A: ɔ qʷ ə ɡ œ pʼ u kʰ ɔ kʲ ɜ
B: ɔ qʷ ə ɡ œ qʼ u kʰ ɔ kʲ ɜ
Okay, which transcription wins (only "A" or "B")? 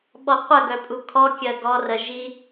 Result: A